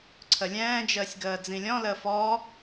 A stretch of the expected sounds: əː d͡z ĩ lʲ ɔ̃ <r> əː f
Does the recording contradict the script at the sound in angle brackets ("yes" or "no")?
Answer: yes